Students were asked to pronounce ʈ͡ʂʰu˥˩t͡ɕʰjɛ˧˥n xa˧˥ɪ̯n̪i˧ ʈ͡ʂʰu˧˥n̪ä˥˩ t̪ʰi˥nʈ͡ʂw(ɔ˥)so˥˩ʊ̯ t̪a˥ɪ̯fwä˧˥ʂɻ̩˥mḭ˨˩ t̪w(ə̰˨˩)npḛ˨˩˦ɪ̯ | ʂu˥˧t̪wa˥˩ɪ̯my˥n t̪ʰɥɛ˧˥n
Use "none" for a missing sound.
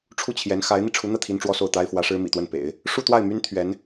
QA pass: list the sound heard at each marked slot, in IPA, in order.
ɔ˥, ə˥˩

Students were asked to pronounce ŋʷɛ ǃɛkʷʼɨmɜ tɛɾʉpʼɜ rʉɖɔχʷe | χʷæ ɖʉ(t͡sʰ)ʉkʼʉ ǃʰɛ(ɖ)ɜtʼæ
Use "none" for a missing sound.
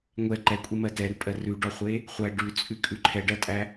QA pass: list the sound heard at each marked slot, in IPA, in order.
t͡sʼ, ɖ

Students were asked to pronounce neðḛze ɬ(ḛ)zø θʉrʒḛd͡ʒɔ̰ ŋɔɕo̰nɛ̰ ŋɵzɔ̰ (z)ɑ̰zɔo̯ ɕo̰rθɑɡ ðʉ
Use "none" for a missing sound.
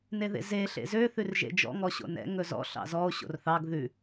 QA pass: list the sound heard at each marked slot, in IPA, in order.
ḛ, ɬ

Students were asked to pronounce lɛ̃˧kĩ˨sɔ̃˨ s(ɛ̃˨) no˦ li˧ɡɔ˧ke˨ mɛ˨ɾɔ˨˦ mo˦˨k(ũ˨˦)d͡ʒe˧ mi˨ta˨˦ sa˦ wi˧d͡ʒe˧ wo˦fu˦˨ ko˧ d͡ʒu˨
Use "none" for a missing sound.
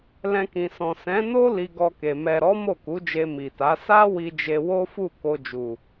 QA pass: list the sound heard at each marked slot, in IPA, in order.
ɛ̃˨˦, u˨˦

